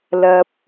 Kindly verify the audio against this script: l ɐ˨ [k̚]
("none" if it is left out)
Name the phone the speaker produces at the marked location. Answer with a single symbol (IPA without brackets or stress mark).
p̚